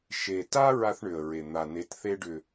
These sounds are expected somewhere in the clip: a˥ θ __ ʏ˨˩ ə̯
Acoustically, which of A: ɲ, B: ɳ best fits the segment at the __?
B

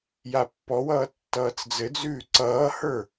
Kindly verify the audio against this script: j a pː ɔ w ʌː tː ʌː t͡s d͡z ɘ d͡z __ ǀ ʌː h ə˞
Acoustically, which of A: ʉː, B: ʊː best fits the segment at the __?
A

